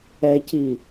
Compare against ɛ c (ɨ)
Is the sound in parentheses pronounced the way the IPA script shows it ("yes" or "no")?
no